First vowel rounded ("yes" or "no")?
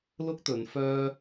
yes